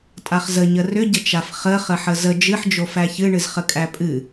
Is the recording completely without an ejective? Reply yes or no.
no